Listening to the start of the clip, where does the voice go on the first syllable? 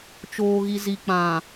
low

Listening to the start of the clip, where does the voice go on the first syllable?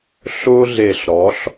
high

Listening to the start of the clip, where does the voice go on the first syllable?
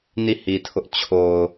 falling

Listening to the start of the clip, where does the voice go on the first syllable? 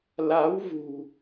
rising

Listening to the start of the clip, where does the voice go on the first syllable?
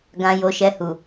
low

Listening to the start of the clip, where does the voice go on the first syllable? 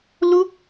falling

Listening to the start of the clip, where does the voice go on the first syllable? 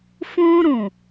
high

